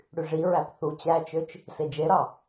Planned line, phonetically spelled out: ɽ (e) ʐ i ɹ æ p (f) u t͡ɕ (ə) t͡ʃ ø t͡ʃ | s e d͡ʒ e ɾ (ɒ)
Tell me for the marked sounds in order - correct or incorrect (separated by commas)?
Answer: incorrect, incorrect, incorrect, incorrect